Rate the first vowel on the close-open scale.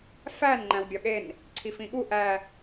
open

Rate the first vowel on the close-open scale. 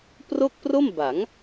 mid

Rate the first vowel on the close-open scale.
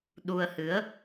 close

